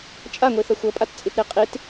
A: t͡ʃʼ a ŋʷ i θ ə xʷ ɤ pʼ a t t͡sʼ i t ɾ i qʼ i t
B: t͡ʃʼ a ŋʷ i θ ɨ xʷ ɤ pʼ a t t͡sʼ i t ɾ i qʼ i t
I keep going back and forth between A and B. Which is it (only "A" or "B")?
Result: A